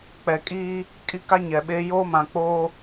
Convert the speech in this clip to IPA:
k͡p ɛ˨ kʼ iː˦ | kʼ i˦ k a˦ ɲ ɛ˨ ɓ eː˦ j oː˦ m ã˨ k͡p oː˦

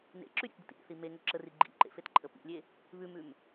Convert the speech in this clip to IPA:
n ḛ ǁ ʉ ɾʲ ḛ t d ə̰ t ḭ ɾʲ ə̰ θ i m e ŋ ɵ ǁ ə r i ɡ͡ǃ ḭ ǃ ḛ f e t ǃʼ ə p ḭ lʲ e | β ʉ m ʉ m

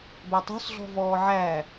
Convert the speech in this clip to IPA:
b æ tˤ ṳ s ɮ ɔ̤ v ɔː ʕ æ

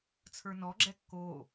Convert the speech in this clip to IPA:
t͡sʰ ə˞ n ɔ ɡ͡ǁ ɛ kː o

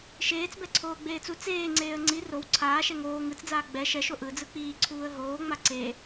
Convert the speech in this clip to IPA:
ʃ eː t͡s b ɛ ǀʰ oː ɡ͡b eː t͡s u t͡s eː ŋ͡ǀ eː ə̯ ŋ͡ǀ i r o w ǀʰ aː ʃ ɛ ŋ oː ŋ ɯ t͡s d͡z aː ɡ͡b ɛ ʃ ɛ ʃ o ʔ ɯ d͡z ɯ k͡p iː ǀʰ uː ə̯ ɦ oː ŋ͡m a ǀ e

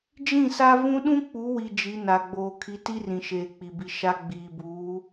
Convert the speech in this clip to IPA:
d͡ʒ ĩ˦˨ s a˦ v ũ˦ ɗ ũ˦ k͡p u˨˦ w i˨ d͡ʒ i˨˦ n a˨ ɡ͡b oː˨ kʰ i˨˦ t i˦ r ĩ˨ ʃ eː˨ k͡p i˨ b i˨ ʃ a˦ ɡ͡b iː˨ b uː˨˦

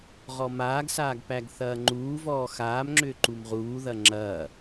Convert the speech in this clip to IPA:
ʁ ɔ m aː ɡ s aː ɡ p æ ɡ θ ɐː ŋ͡ǃ uː v ɔː x aː m ŋ͡ǁ ʏː ǃ u m ʁ uː ð ɐ ŋ͡ǁ ɐː

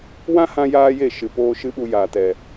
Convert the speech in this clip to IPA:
w ã˦ h ã˧ j aː˦ j e˦˨ ʃ ɨ˨ p oː˧ ʃ ɨ˦ ɓ u˧ j aː˨ t ɛ˨

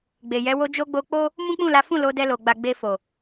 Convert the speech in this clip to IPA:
ɡ͡b e˨ j ɛ˨˦ w o˧ d͡ʒ o˧ ɡ͡b o˧ k͡p o˦ | m ũ˦ k͡p ũ˦˨ l a˨˦ f ũ˦˨ l o˨˦ d ɛ˧ l o˨ ɡ͡b a˨ ɡ͡b e˧ f o˨

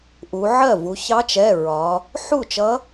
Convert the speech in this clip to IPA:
ʔ u˩˧ ʕ ɜ˥˩ v u˩˧ ç ɑ˧˥ t͡ʃ ɛ˩˧˩ ɹ ɒ˩˧ | ħ u˥˩ t͡ʃ ʌ˧˥

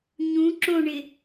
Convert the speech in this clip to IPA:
ɲ ũ ǁ õ ɳ ɪ

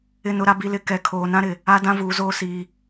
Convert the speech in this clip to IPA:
ɪ˦ n ʊ˦ ɾ a˨ b i˨ l ɪ˨ k ɛ˨ kʰ oː˨ n ã˦ ɾ ɪ˨ | a˦ d ã˦ v uː˨ z oː˦ s iː˨

